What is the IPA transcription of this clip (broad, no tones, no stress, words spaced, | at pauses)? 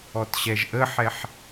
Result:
ɔtɕɛʒʔəːħɛħ